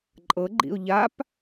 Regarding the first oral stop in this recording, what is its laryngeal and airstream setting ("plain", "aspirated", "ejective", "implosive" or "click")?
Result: click